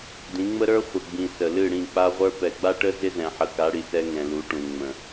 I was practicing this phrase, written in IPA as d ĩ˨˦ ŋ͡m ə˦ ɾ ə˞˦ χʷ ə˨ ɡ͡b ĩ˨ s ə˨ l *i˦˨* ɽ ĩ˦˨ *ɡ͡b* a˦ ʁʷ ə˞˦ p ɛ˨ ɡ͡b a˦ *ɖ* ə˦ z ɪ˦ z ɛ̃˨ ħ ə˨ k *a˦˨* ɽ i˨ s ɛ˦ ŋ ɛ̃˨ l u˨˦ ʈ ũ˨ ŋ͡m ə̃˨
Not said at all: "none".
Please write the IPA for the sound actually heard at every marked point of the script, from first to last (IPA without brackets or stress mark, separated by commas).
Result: ɨ˦˨, k͡p, ʈ, a˨˦